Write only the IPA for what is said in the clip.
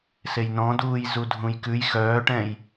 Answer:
sejnɔ̃duːj zudʱũjkʉj xœːʈɛ̃j

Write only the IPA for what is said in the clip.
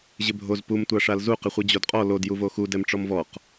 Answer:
ʑɪbʱoz pum tʷaʂalzu qɪχʷid͡ʑodqʼɔ lod juvoxu dɛmʈ͡ʂɔmvɔq

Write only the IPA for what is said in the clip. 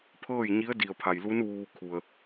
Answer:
pʰɤː˥˨jɲi˧˥ə̯ di˩ə̯pʰa˩jlu˧˥n ʋuː˧kʰu˩ə̯

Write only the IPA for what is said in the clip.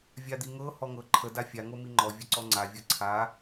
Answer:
vʲad̪iŋɤ hɔŋɤ ǃʰə dafʲa ŋomiŋ͡ǃɔ vʲəǀɔŋ͡ǀa vʲɤǀʰa

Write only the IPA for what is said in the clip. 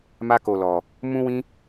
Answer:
ma˦ko˧lɔ˧ | mũ˦wĩ˦

